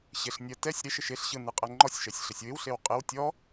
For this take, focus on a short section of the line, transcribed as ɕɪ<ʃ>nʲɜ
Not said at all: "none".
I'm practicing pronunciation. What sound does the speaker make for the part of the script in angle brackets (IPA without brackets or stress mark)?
ɬ